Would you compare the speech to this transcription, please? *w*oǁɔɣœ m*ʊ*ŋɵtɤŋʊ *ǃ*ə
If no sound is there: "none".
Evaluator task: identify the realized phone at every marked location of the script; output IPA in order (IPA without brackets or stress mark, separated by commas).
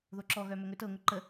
ð, ɵ, ǃ